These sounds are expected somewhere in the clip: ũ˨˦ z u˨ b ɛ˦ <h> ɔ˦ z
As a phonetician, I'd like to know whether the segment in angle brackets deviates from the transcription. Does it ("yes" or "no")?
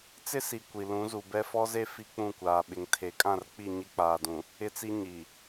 yes